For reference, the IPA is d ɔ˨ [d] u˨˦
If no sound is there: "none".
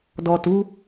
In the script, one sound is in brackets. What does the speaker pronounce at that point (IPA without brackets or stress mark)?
t